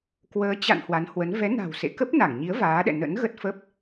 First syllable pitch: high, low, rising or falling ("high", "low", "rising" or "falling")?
rising